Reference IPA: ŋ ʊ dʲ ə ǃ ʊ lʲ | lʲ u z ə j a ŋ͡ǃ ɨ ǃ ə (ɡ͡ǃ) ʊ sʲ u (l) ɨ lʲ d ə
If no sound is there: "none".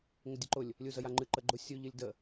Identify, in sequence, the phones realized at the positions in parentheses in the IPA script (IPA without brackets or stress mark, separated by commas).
ɡ͡ǃ, ʎ